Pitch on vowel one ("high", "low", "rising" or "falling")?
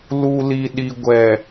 low